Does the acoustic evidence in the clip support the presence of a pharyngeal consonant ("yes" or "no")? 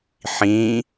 yes